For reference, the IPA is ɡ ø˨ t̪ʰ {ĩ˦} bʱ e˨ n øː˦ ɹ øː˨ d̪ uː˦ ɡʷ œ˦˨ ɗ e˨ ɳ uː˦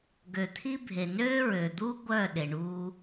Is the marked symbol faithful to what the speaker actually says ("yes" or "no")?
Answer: no